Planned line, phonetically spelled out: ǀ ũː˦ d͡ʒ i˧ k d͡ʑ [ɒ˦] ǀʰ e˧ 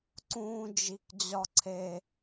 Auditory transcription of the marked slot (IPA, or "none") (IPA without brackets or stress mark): ɒ˦